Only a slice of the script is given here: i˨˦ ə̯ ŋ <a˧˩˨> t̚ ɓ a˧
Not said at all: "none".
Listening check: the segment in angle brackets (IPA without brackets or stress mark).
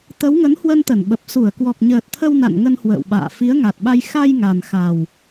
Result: a˨˩